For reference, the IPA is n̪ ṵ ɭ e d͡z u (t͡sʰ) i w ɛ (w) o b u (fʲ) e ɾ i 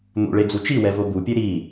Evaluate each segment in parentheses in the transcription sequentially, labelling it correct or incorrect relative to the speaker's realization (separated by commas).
incorrect, incorrect, incorrect